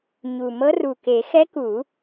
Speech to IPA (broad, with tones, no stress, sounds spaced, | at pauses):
ɲ u˨˩ m ɤ˧˥ r u˨˩ k e˨˩˦ x ɛ˧˥ k u˨˩˦